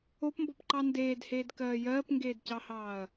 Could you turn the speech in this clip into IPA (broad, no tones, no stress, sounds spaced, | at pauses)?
o p m b ɔ p ǃ ɑ n d eː d h eː d k ɜː j ɜː p ŋ ɡ eː d c ɑ h ɑː ɐ̯